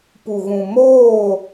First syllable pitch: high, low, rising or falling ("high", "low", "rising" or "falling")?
low